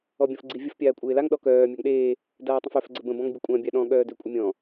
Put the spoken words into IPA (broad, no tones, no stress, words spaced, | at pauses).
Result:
ɔbʲɔ̃fɡ͡ǀivʲəf pʲaːkʷʼeːlaŋ ɗɔkœː mʲaŋɗeː | daːtˤə̃fœf ɡ͡ǀəbə̃ bɔ̃ŋbʲəkʷʼã bʲaɗɔ̃ ɠœːdøkʷʼəmʲɔ̃